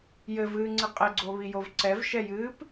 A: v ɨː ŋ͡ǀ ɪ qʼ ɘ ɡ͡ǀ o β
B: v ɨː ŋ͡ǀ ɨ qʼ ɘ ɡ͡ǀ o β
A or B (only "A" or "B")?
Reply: B